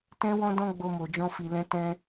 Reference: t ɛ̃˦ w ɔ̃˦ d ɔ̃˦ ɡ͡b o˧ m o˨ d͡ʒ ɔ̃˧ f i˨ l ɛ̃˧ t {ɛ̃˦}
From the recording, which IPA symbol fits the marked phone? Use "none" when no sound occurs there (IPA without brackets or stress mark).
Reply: ɛ̃˧